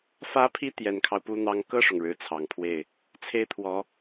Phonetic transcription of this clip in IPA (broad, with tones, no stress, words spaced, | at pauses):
fä˥pʰi˥ t̪jɛ˨˩nkʰɑ˦ʊ̯pu˧˥ n̪ɑ˧˥ŋkɤ˥˩ʂʊ˩ŋ ɻɻ̩˧˥t͡sʰɑ˨˩ŋpʰwe˥˩ɪ̯ | t͡sʰe˥ɪ̯t̪ʰwɔ˧˥